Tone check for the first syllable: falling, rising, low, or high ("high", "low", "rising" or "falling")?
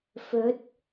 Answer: rising